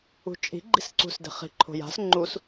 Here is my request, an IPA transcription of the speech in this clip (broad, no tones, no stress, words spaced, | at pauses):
ṳt͡ʃʼi̤ɡ͡ǃi̤s ǀṳsde̤χi̤ǃʰo̤ ja̤s ŋ͡ǃus